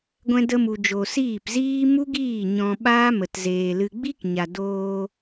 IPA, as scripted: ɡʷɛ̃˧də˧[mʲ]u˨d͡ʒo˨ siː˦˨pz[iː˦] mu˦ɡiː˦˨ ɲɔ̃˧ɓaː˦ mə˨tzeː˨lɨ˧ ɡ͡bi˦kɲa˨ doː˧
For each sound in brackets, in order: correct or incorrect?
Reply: incorrect: m, correct

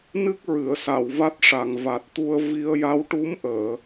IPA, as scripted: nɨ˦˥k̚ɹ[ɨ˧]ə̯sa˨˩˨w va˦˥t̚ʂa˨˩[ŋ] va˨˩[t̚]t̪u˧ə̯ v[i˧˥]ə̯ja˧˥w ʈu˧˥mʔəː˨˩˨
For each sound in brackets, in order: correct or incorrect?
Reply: incorrect: ɨ˨˩˨, correct, correct, incorrect: i˧

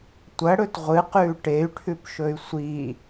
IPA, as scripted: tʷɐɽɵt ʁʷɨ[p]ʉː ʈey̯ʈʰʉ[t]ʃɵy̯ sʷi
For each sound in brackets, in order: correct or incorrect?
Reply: incorrect: q, incorrect: p

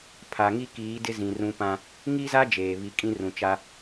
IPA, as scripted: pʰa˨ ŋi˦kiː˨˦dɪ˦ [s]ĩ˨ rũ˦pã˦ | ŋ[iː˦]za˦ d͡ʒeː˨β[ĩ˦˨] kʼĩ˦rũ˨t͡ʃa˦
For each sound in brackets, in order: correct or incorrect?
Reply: incorrect: z, incorrect: i˦, incorrect: i˦˨

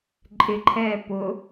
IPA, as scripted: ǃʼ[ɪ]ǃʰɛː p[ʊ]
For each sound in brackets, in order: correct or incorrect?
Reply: correct, correct

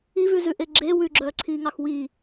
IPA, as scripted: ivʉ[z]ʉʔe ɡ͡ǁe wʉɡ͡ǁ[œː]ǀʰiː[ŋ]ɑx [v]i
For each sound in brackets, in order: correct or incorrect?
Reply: correct, correct, correct, incorrect: w

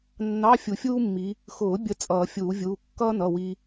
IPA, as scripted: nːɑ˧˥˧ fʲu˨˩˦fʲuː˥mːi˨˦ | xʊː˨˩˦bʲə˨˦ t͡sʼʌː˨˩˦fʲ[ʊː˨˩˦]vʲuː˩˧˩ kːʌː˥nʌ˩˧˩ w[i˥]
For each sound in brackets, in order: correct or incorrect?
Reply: incorrect: uː˨˩˦, correct

